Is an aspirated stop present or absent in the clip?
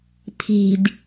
present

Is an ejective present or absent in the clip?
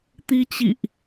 absent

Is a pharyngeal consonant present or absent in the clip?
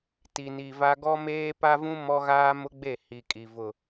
absent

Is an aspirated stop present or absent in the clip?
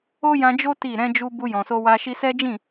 absent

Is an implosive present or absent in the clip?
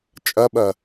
present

